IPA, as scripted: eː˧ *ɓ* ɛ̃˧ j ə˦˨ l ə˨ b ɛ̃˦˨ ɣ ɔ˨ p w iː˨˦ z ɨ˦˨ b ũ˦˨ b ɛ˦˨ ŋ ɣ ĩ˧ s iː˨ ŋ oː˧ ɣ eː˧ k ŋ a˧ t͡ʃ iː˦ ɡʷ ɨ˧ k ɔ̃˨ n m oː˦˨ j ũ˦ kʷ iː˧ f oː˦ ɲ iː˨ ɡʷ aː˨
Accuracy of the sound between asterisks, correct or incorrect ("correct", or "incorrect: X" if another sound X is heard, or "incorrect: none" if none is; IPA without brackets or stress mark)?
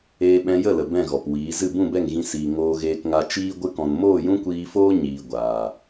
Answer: correct